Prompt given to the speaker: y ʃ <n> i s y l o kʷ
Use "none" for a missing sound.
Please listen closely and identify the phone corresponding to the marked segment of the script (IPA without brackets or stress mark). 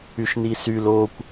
n